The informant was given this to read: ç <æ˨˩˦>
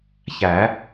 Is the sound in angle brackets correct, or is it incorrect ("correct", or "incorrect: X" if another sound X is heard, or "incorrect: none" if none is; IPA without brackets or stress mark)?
correct